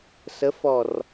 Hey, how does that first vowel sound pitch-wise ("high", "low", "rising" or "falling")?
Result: rising